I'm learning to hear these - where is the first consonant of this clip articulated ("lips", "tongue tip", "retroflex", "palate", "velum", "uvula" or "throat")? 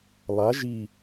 tongue tip